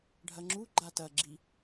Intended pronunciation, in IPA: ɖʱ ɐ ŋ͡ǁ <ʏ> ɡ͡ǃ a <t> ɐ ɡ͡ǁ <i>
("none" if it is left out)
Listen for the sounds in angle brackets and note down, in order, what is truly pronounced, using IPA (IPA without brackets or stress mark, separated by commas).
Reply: u, t, i